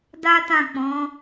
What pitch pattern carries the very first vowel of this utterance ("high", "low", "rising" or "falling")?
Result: high